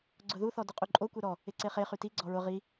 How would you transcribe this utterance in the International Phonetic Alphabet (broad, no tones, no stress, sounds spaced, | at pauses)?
ɡ͡ǀ ʊ ð u θ ɔ d ʊ qʼ u ǃʼ o kʷ e ɾ ɔ | ɪ ǀ e χ e χ y t i ɡ͡ǀ ɔ ɹ ʊ ʁ i